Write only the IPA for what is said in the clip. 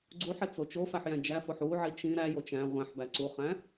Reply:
ɡ͡ǀ u ħ e t͡s o t͡ʃ o f æ ħ j æ̃ d͡ʒ æ f o ħ u ʕ i t͡ʃ ĩ ɾ æ j o t͡ʃ æ̃ ʁʷ æ̃ ħ b æ ǀ u χ æ̃

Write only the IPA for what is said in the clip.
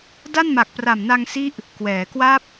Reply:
d a˥˩ n m a˨˩ k̚ p r a˨˩ m n a˧ ŋ s i˦˥ ʔ | k w ɛː˩˦ k w a˦˥ p̚

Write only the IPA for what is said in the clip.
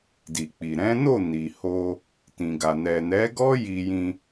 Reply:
d i˨ k͡p i˨ ɾ ɛ̃˨˦ n o˦˨ n i˨ h o˧ | t ĩ˨ ɡ a˨ n ɛ˨ n ɛ˨˦ ɡ ɔ˦ j i˧ j ĩ˧

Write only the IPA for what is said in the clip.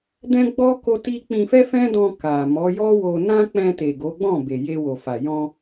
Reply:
d ɛ̃˦ ɡ͡b ɔ˦ k o˦ t i˦ k͡p ĩ˧ f ɛ˦ f ɛ̃˦ d ɔ̃˧ k a˨ m ɔ˨˦ j ɔ˦ w o˧ n ã˦ k͡p ɛ̃˧ t e˨ ɡ o˨˦ ɡ͡b ɔ̃˦˨ b e˨ j e˧ w o˨ f a˨ j ɔ̃˧

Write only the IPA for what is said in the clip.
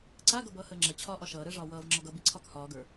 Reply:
ǀ a ɡ ʌ b ʌː h əː ŋ͡ǁ ɜ t͡ɕʰ ɒː ʔ ɒ ʃ ʌː ɾ əː ʐ ɒː w ʌː v ŋ͡ǁ ɒ ɡ ʌ b i ǀʰ ɒ k h ɒː ɡ ə˞

